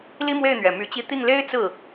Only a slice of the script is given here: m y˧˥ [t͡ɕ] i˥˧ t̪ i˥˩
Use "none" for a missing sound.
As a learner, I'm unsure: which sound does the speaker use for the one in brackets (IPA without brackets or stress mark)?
t͡ɕ